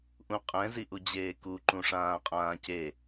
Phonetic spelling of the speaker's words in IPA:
ʔ ũ qʼ ɛ̃ z i ʔ u d͡ʑ eː k u ǃ ũ ʂ ãː qʼ ãː c e

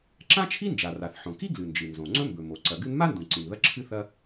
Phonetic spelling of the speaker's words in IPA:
ǁ ã˥ t͡ʃʰ i˥ n d͡ʒ a˩ r a˩ θ ħ õ˩ k i˥ ɡ l ɨ˩ n d͡ʒ ɨ˩ n z õ˩ ŋ͡ǀ ɵ˥ m b ɵ˩ m o˩ ǀ ɐ˩ ɡ ɨ˥ n m a˥ n d ũ˩ ǀ ĩ˩ n ð ɐ˥ ǁʰ ɨ˥ θ ɐ˥

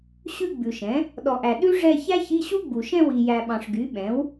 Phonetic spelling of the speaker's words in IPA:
ɕ ʉ˥˧ ɡ͡b ʉ˨ ʃ ɛ̃˩˥ | ɗ ɔ˨ ʔ æ˨ ɗ ʉ˥ ʐ ɛ˥˧ ç æ˥ ç i˧˥˧ ɕ u˥ ɡ͡b u˨ ʃ ɛ̃˥˧ w i˨ j æ˨ ɓ ɑ̃˨ ʂ ɡ y˩˥ ɓ ɛ̃˩˥ w

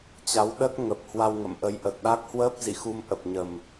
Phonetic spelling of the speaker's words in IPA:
t͡ɕ a˨˦ w ɗ ə˦˥ t̚ ŋ ə˨˩ p̚ h w a˧ w ŋ ə̰˧˨ m ʔ ə˨˦ j ʔ ə˨˩ t̚ ɗ a˦˥ k̚ h w əː˦˥ p̚ z ḭ˧˨ x u˧ m ʔ ə˨˩ p̚ ɲ ə˨˩ m

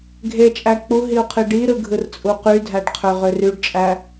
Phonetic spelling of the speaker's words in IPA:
ɡʱ e t͡ʃʼ æ k͡p u ɦ i u̯ qʰ i ɖ i ɾ ɯ ɡʱ ɯ r t͡sʼ u q y dʱ æ ɖ qʰ ø ʁ ø r y ɖ t͡ʃʼ æ

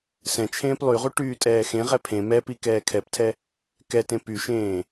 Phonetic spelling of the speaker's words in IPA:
s ɛ̃ t͡ʃʰ ẽː p lˠ y ʁ u ʈ yː tʼ ɛː x ẽ ʁ ɛ pʰ ẽ m ɛ p i k ɛː kʰ ɛ p tʰ ɛ | k ɛ t ẽ p y ʃ ẽː

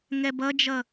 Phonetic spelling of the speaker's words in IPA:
ŋ ɛ b ʌ d͡ʒ ʌ

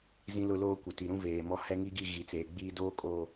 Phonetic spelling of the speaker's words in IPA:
z ĩ˦ l ʊ˦ l oː˦ kʷ ɪ˨ t i˨ ɾ ũ˦ v eː˨ m ɔ˦ h ɛ˦ ŋ i˦ ɡ i˦˨ ɣ i˨ t͡s eː˨ ɡ͡b iː˦ d oː˦ kʼ o˨

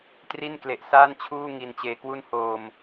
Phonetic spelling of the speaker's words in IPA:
t r i˥˩ n k l e˨˩ ʔ s aː˥˩ n t͡ɕʰ uː˥˩ ŋ i˧ n t͡ɕ eː˧ k w u˥˩ n h oː˧ m

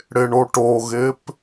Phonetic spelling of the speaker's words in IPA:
ɽ ɪ ɳ o ʈ o ɣ ɪ p

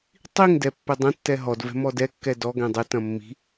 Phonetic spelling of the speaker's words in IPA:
tˤ i ŋ d ɛ pː ɘ dˤ ɐ̃ tː ɛ ɦ ɔ d v ɛ̤ m ɔ d ɛ kː ɛ d ɔ ɡ ɛ̃ dˤ ɘ t ɐ̃ mː i̤

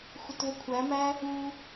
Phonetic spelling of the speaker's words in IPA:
xʷ ɪ t v ə kʷʰ æ m æ | u

